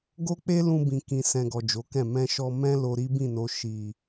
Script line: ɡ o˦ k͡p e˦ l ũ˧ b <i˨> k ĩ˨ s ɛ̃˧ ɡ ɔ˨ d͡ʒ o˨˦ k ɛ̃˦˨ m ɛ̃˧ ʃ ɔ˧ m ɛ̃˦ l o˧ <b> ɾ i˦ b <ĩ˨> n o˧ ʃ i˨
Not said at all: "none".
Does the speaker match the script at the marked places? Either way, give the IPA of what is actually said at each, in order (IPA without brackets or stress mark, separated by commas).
ĩ˨, none, ĩ˦˨